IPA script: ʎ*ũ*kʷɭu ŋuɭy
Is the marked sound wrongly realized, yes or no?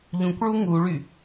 no